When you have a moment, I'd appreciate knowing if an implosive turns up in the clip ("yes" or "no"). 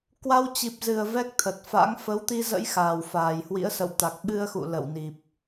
yes